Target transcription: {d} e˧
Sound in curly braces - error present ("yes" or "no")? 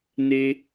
yes